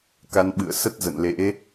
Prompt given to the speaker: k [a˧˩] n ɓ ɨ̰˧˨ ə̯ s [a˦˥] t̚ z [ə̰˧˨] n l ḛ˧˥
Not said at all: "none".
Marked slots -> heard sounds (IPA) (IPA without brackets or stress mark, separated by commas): a˧, ə˦˥, ə̰˧˨